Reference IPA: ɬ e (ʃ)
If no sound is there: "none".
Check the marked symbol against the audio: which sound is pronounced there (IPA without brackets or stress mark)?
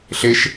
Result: ʃ